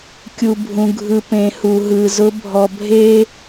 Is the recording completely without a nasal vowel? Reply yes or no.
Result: no